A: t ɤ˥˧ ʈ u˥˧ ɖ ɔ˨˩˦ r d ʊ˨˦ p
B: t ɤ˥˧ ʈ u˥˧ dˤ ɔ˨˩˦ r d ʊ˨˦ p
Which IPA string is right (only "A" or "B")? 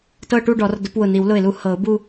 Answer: A